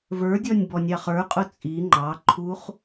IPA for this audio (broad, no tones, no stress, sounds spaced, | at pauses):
v ə˞ dʲ ɔ nʲ b ɔ nʲ ɑ χ ə˞ qʼ ʊ t͡sʼ i ŋ͡ǃ ɑ ǃʰ u χ